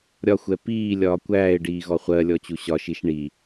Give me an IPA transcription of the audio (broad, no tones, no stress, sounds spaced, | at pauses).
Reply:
ɾʲ ɒ xʷ ɛ p iː lʲ ɒː kʷ æː ɪ̯ ɖ iː ɣ ɔ χʷ ɜ lʲ ɔ t͡ɕ u ɕ ɒ ʃ i ʃ ɳ i